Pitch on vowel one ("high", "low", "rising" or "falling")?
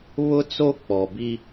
high